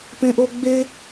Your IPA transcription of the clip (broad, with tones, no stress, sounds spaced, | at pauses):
p ẽ˥ ʔ o˥ ɡ͡b e˥